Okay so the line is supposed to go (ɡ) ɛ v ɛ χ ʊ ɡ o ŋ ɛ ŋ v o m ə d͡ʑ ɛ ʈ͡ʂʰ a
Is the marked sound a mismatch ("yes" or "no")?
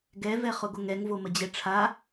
no